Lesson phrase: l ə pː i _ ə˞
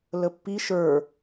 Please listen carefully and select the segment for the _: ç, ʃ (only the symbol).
ʃ